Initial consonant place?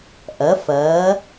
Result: glottal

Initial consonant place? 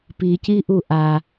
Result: labial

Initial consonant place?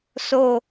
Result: alveolar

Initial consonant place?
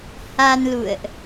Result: glottal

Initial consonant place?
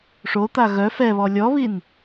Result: retroflex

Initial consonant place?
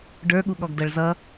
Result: retroflex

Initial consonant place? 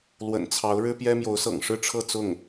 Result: alveolar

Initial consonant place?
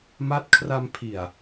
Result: labial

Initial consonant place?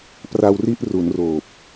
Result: labial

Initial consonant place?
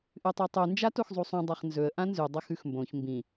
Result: glottal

